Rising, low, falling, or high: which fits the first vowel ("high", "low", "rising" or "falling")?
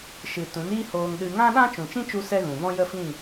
low